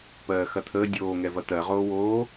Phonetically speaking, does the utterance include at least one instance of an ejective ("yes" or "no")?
no